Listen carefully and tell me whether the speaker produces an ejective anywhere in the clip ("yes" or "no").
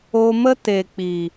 no